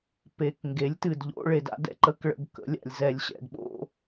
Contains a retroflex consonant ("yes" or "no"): yes